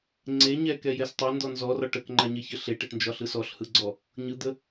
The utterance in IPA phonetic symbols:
ŋ͡ǀ e ɲ ɛ k ɛ j ɛ s tˤ ɛ n d ɔ n z ɔ r ɒ ʈ ə k ŋ͡ǃ a ɲ e ç ə ɬ e ʈ ɛ ʈ n d͡ʒ ɒ ɬ ɯ s ɔ ɬ h ɯ ɡ͡ǀ ɔ | ɲ ɯ d̪ ə

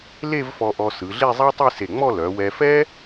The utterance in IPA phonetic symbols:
l e˥˧ v f ɔ˧ ʔ ɔ˧ s ɯ˩˧ ɮ e˥˧ zˤ a˥ tˤ ɯ˥˧ s e˧˩ ŋ͡m ɔ˥˧ l œ˩˧ w ɛ˧ f ɛ˥

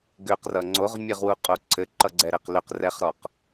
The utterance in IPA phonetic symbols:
ɡ ʏ q r ʌ ŋ͡ǀ o ʁ mʲ ɘ ʁ w u qʼ o ǀʰ ɘ ǃ ʌ ɡ͡ǀ ɛ ɾ ɘ q l ʏ q r ɛ χ ɾ ɔ q

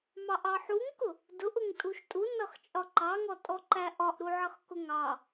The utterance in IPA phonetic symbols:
m ɑ ʔ ɑ ħ u ŋ k ʊ | d ʊ ʔ ʊ ŋ tʼ u ʃ tʼ u n ʌ χ t͡ʃʼ ɒ ǃ ɑ ŋ ɔ tʼ ɔ ǃ æ ʔ ɒ ʔ ɾ u ʕ ʌ χ k ʊ ŋ ɑ

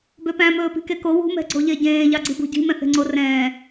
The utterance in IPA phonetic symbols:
b ø p æ̃ m ɵː p i̤ k e k o w ṳ m ɛ̤ ɡ͡ǀ o ʎ e ɟ ẽː ʎ ɑ ɡ͡ǀ i b ṳ ɟ i̤ m ɛ̃ θ e̤ ŋ͡ǀ o r ɛ̃ː

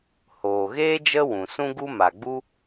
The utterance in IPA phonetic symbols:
h oː˨ ɣ eː˦ d͡ʒ ə˦ w ũ˨ s ũ˦ ɡ u˦ m a˨ ɡ͡b u˦

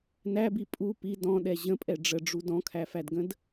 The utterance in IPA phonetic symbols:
n æ b i pʼ u p i d ɔ̃ ɗ ɛ ʑ ə̃ pʼ ɛ ɖ͡ʐ ə ɖ͡ʐ u d ɔ̃ kʰ æ f æ d ɡ ə̃ d

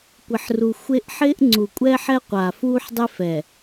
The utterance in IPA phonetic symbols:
kʷ ɪ˨ ħ r u˨ xʷ e˦ ʔ ħ ɪː˦ ʔ ŋ͡ǀ u˨ kʷʼ ɛː˦ ħ ɛ˦ qʷ a˨ f uː˦ ħ dˤ e˦ f ɛ˨

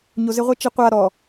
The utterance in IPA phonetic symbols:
ɲ o z ɪ ʁʷ i t͡ʃ ɪ qʷ a ɾ ɔ

